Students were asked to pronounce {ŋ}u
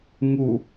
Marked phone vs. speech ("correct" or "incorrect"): correct